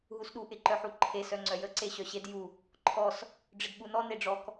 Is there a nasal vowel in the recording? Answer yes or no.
no